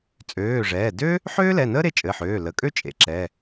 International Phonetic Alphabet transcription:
t͡sʼ øː˩˧˩ ʐ ɛː˩˧˩ d ø˥ | ħ øː˥ l ɛ˩˧˩ n əː˥ ɾ e˩˧˩ t͡ʃʼ ɘ˩˧˩ ħ øː˩˧˩ l ə˩˧˩ kʼ ø˥ t͡ʃʼ ḛ˩˧˩ ǁ ɛ˩˧˩

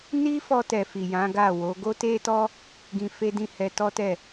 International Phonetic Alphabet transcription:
n i˦ f ɔ˧ t ɛ˨ f i˨ j ã˨˦ ɡ a˦˨ w o˨˦ ɡ o˦ t e˦ t ɔ˦ | ɡ ĩ˧ f e˦ d ĩ˦˨ h ɛ˧ t ɔ˦ t ɛ˦˨

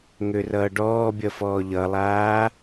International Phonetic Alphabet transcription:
ŋ ø r ʌː ɖ ɔː bʲ ʌ f ɔː ʎ ʌ lˠ aː

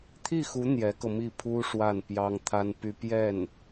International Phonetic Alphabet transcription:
t̪ʰ i˥˩ x u˧˥ n̪ j ɛ˧˥ k ɤ˧ m i˥˩ pʰ u˥ ʂ w a˥˩ n p j ɑ˥ ŋ t̪ʰ a˥ n p y˥ p j ɛ˥˩ n

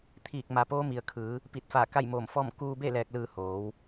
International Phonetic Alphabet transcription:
t̪ʰ iː˧˩ k̚ m a˩˧ p oː˧˥ m i˩ ə̯ kʰ ɯː˩˧ | p i˧˩ t̚ f aː˧˩ k a˥˨ j m oː˧˩ m f ɔː˥˨ m k uː˧ b e˥˨ l ɛː˧ k̚ l ɯː˧ h oː˩˧ w

